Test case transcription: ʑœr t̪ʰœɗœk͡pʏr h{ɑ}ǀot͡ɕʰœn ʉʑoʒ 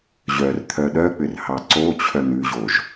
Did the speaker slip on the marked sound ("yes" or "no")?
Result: no